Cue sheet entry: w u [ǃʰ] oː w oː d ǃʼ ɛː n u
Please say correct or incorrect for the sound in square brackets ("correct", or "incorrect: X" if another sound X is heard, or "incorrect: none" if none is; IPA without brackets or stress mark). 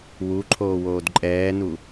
correct